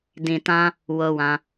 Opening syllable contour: low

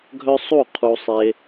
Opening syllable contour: high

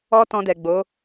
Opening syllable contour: high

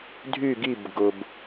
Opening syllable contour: falling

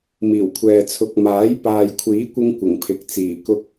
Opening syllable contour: low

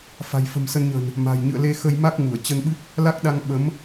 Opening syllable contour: low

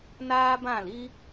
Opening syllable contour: high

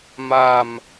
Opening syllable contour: falling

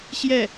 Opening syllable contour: falling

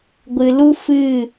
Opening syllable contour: low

